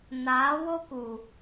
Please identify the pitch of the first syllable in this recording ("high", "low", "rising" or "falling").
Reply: rising